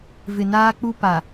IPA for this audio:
v ɪ˨ n aː˦ k͡p u˦ p a˨

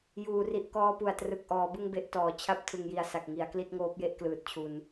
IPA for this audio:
j uː˩˦ r i˨˩ ʔ k ɔː˧ p u˨˩ a̯ t r ɯ˨˩ k̚ ʔ ɔː˩˦ b ɯ˥˩ ŋ b e˥˩ ʔ t ɔː˨˩ t͡ɕʰ a˦˥ p̚ tʰ ɯ˨˩ ŋ j i˩˦ a̯ s a˨˩ k̚ ŋ i˩˦ a̯ k l i˥˩ t̚ ŋ oː˦˥ p̚ j e˥˩ ʔ k l ɯː˨˩ t̚ t͡ɕʰ u˧ n

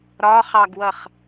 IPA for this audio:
ɾ ɒ χ ɑ ɡ w ʌ χ

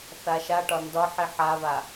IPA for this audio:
θ a ʃ a ʈ ɒ n d ɒ ħ i ħ a β a

